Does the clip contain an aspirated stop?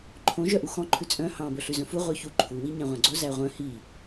yes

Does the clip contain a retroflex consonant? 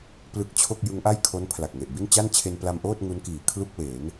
no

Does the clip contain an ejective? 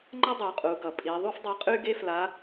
yes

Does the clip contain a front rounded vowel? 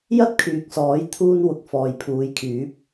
yes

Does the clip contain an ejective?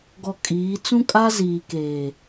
yes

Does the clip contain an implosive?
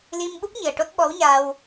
yes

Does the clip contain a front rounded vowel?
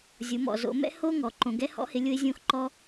no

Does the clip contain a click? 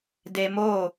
no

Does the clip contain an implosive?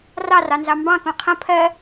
no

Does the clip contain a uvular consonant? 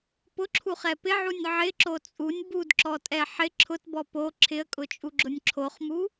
yes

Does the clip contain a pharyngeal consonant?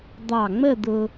no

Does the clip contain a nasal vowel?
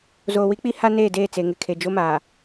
no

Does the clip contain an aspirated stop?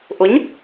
no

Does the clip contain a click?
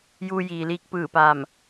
no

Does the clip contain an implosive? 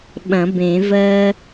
yes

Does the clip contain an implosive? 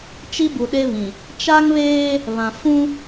yes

